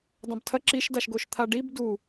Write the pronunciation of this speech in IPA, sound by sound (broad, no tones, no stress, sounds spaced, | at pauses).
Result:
dˤ ɐ̃ b tʰ ɐ ǁ i ʃ d a ʃ ɡ o ʃ t̪ʰ a ɖ i b d u